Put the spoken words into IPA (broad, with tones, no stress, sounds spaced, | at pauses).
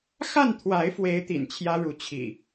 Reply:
x a˥˨ n t̪ʰ w a˨˦ ɪ̯ f w e˨˦ ɪ̯ t̪ ḭ˨˩ n t͡ɕʰ j ä˦ ɻ u˨˦ t͡ɕʰ ḭ˨˩